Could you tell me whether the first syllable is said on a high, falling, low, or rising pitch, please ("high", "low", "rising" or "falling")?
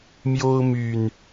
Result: high